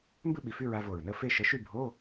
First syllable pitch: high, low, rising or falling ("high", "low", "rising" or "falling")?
falling